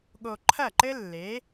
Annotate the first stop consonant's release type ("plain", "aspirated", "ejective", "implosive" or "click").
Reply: implosive